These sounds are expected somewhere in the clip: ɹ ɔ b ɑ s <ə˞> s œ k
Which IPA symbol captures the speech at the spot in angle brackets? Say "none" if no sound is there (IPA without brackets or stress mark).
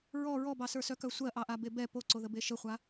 ə˞